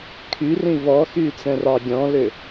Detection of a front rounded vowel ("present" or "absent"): present